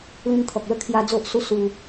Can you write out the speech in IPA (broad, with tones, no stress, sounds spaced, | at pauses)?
l ĩ˧ n t̪ʰ ɔ˨ k̚ l ə˥˧ kʰ j a˧ d͡z o˦ ʔ s u˦ s u˧